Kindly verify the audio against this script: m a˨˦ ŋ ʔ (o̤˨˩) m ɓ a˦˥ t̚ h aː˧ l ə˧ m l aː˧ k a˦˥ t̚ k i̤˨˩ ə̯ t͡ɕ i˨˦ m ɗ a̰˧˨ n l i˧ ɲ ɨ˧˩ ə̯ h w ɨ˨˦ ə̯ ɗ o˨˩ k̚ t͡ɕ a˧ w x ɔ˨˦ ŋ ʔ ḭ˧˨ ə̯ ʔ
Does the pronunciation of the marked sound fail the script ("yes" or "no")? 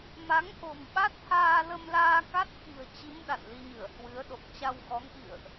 no